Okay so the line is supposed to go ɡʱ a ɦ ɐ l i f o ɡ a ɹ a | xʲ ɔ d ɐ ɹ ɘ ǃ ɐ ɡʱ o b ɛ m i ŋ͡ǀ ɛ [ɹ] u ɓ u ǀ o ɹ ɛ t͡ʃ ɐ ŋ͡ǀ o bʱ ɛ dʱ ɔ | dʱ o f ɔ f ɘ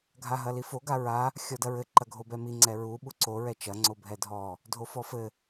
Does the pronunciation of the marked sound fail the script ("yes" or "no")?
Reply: no